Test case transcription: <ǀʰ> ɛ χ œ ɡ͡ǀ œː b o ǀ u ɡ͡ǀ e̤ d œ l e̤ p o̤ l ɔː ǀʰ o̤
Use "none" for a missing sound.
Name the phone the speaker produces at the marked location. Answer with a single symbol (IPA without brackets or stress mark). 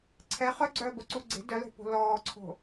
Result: ǀʰ